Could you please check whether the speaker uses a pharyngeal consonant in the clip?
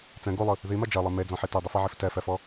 yes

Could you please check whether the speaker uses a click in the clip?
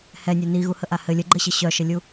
yes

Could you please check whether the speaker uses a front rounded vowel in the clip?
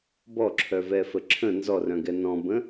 yes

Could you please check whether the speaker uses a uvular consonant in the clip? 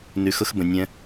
no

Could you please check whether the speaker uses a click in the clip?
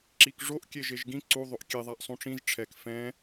yes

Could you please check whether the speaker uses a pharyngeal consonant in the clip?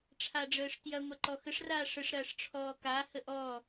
no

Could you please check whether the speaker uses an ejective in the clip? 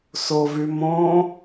no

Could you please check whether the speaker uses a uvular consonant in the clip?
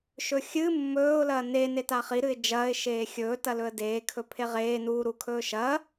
yes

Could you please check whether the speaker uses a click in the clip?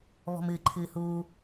yes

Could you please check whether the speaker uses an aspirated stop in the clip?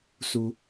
no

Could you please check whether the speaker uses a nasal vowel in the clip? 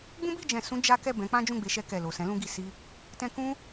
yes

